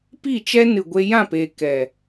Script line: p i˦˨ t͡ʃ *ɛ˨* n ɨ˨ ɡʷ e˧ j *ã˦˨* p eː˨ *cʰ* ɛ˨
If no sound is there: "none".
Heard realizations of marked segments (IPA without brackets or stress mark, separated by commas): ɛ˦, ã˦˨, k